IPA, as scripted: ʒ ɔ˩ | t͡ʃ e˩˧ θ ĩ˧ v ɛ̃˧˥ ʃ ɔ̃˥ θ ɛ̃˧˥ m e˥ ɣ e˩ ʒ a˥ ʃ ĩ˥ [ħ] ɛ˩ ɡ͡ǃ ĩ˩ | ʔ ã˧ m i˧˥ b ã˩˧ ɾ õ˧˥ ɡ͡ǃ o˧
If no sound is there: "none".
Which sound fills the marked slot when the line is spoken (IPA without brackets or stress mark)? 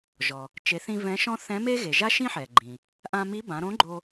ħ